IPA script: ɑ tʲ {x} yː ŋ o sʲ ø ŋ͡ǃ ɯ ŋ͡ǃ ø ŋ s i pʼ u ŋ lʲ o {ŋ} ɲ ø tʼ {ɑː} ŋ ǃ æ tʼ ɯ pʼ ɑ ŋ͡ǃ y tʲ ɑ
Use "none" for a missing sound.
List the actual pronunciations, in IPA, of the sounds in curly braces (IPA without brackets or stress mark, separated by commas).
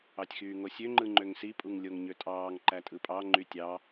x, ŋ, ɑː